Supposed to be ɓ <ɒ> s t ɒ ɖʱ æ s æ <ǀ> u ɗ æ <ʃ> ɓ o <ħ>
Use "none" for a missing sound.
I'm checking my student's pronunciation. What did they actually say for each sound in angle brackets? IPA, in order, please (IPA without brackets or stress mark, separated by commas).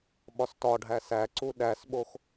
ɒ, ǀ, s, x